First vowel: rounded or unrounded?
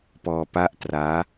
rounded